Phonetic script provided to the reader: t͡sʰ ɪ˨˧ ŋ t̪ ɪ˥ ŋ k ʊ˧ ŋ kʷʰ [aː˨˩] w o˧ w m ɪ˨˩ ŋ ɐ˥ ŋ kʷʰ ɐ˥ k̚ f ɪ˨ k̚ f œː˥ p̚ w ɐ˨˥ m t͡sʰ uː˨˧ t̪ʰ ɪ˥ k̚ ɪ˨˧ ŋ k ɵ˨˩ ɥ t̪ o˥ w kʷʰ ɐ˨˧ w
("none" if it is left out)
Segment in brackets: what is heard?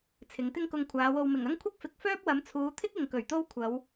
aː˨˧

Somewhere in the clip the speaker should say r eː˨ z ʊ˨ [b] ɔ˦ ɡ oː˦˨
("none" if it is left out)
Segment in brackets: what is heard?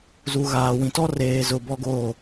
b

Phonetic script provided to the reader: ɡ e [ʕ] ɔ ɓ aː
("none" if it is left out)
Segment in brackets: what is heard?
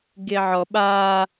ʕ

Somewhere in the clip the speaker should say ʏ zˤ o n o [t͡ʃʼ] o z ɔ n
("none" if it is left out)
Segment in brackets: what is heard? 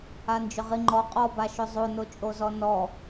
t͡ʃʼ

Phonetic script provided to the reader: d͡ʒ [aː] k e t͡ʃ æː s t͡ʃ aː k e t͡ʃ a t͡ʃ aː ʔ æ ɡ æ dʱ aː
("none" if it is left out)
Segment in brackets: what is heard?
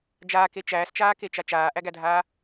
aː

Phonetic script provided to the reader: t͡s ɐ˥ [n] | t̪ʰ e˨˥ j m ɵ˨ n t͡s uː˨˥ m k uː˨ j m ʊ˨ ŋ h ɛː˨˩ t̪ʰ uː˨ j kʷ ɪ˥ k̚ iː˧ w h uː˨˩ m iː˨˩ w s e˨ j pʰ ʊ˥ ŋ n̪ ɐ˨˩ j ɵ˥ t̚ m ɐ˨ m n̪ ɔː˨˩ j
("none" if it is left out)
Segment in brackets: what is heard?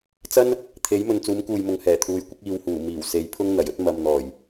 n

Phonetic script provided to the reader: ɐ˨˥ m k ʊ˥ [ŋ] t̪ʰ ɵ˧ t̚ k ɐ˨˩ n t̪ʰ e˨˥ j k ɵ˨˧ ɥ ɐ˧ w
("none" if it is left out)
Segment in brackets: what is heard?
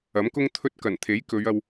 ŋ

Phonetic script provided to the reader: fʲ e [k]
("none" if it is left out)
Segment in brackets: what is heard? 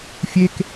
k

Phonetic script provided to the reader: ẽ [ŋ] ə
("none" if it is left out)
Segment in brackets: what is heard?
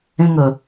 ŋ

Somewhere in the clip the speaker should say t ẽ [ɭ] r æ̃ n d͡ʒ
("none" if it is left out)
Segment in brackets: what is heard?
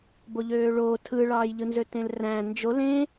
l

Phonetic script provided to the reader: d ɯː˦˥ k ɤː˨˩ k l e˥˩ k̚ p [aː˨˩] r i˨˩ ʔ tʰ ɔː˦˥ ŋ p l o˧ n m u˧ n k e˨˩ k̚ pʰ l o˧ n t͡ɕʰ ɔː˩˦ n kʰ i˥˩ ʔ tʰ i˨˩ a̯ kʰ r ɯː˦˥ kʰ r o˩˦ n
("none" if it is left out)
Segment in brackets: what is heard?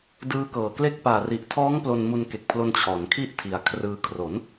aː˨˩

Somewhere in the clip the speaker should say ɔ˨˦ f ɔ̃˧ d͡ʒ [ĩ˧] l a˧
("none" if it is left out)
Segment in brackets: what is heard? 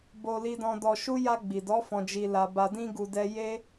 i˧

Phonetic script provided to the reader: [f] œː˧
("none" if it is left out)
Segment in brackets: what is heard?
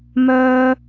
m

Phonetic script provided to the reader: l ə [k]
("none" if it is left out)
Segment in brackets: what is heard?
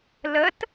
t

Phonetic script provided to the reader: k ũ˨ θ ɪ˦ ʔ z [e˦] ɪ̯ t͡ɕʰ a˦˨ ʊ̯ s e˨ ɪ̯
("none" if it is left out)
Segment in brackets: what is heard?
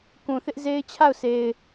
e˦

